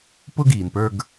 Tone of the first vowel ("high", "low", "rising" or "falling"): high